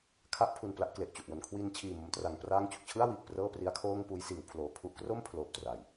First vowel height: low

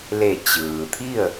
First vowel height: mid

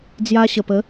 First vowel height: low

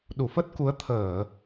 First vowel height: high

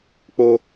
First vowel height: mid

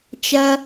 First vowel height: low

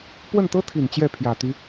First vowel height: mid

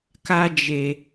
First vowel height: low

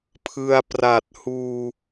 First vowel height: high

